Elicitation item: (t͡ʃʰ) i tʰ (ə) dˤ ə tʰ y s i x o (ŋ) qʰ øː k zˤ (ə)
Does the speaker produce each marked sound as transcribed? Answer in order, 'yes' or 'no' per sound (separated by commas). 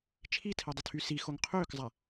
yes, no, yes, no